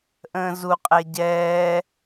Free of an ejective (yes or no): no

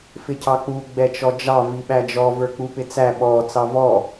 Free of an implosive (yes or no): no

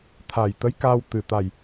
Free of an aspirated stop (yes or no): no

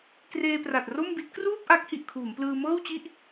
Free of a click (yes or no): yes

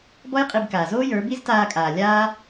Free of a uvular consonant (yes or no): no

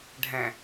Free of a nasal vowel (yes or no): no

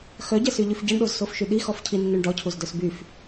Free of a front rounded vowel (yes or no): no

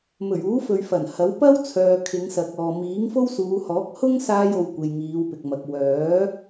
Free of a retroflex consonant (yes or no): yes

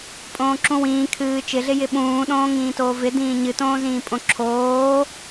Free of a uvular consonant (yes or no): yes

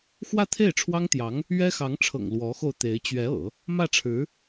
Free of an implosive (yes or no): yes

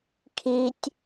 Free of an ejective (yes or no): yes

